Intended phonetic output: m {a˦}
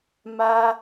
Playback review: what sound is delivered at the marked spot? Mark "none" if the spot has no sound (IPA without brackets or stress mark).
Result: a˦